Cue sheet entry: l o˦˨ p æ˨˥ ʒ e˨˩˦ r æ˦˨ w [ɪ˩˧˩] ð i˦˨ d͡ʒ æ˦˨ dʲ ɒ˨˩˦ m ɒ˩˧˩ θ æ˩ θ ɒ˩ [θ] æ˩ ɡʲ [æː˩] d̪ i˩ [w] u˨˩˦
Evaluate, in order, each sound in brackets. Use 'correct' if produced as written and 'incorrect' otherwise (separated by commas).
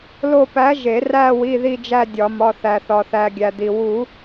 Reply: incorrect, correct, incorrect, correct